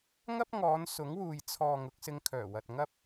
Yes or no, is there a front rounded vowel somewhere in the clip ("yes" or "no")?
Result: yes